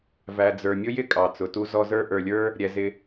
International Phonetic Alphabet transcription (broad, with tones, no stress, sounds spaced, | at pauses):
v æ˩ d͡z ə˞˩ mʲ ʊ˥ j ɪ˥ kʼ ɑ˩ t͡s ʊ˩ t u˦ z ɔ˦ z ə˞˥ ʔ ə˞˨ lʲ ə˞˥ | ɾʲ ɛ˩ z ɪ˨